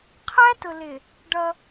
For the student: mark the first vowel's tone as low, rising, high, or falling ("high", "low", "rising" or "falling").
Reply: high